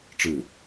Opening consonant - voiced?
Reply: no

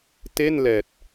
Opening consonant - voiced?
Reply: no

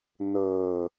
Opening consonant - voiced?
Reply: yes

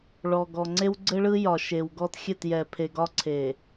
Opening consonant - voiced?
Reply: yes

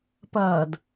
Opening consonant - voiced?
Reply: no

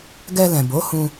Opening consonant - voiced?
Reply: yes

